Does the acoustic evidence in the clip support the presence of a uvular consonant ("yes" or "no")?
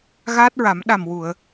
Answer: no